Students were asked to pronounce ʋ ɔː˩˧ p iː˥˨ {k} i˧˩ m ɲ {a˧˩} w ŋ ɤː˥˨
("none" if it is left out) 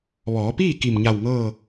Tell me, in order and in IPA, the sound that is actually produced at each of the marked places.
k, a˧˩

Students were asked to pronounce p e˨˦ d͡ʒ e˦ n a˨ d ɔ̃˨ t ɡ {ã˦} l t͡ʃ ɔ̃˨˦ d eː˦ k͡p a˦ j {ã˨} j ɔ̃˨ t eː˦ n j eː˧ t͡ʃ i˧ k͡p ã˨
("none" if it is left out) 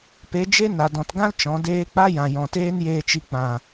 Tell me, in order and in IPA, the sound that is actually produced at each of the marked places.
ã˦, ã˨

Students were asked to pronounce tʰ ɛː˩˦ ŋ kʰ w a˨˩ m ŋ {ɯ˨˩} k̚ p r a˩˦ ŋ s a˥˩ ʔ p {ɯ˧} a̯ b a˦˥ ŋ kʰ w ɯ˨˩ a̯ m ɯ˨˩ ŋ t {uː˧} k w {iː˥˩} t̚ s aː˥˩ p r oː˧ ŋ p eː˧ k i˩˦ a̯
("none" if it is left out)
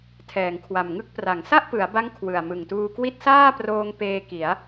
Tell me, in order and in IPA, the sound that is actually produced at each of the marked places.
ɯ˥˩, ɯ˩˦, uː˧, i˥˩

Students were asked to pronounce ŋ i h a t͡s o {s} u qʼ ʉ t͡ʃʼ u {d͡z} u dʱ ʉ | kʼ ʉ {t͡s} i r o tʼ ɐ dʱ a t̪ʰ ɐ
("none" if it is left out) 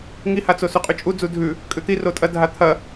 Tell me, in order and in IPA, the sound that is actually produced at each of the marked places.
s, d͡z, t̪

